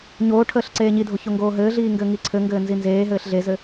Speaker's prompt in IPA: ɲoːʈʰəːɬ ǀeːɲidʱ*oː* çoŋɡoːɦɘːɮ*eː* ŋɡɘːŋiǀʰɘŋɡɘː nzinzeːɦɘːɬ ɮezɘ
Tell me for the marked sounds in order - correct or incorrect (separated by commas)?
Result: incorrect, incorrect